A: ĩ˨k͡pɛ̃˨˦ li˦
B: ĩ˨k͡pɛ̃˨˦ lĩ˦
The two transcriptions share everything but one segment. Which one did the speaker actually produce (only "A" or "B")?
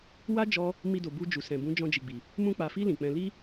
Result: A